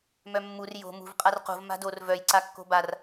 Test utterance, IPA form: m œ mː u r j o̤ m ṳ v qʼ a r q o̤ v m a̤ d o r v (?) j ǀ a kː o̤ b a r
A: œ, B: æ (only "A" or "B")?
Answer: A